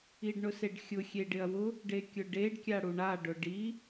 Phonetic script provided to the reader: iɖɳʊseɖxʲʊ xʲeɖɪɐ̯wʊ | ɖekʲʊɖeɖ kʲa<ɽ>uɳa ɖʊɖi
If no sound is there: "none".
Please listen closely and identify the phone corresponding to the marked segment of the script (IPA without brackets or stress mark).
ɽ